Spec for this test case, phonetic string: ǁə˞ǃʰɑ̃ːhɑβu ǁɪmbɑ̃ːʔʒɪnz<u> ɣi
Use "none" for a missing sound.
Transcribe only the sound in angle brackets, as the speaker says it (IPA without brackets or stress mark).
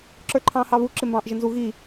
u